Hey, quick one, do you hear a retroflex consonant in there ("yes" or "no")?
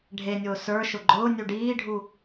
yes